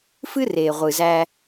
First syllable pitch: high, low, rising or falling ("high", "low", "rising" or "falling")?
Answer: high